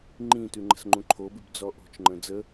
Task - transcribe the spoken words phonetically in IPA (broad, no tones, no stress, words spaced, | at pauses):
ŋ͡ǃĩtʉ ŋ͡ǃə̤sŋ͡ǃũǃʰobʉb d͡zɔʔo̤t͡ʃŋ͡ǃə̃ d͡zə